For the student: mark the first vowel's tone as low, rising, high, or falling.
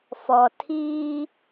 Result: low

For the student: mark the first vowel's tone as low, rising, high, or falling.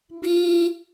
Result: high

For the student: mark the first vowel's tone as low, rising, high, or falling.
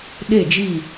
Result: falling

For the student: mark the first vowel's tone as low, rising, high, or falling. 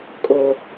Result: low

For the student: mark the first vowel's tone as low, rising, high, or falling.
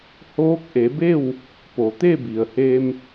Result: rising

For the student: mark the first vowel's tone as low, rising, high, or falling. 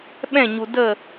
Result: falling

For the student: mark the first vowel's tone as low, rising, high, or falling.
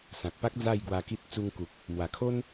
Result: low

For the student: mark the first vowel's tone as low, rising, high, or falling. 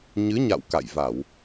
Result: rising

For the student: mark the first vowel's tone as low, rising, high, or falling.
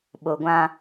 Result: low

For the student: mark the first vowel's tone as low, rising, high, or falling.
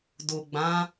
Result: low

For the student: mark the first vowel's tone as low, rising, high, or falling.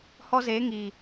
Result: high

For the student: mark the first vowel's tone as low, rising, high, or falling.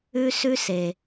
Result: high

